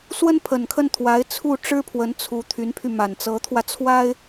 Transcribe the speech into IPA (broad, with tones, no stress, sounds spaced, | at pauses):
s w ə˥ n pʰ ə˨˩ n kʰ ə˥˩ n t̪ʰ w a˧˥ ɪ̯ t͡sʰ u˥˩ ʈ͡ʂ ɻ̩˥ pʰ w ə˧˥ n t͡sʰ u˧˥ t̪ʰ y˧˥ n pʰ y˧ m a˨˩ n t͡s ɤ˧˥ t̪ʰ w ä˧ t͡sʰ w a˥ ɪ̯